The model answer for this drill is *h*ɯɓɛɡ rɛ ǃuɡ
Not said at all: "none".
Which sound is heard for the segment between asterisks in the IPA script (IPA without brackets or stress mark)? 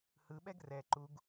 h